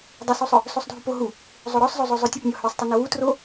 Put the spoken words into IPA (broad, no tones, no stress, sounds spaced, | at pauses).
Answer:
dˤ ə s u sˤ œ | s o sˤ dʱ u p o ɦ u | zˤ o ɾ ɔ sˤ zˤ o zˤ o zˤ œ tʲ ə p nʲ ɔ h ø sˤ tˤ ə n ə w u t r o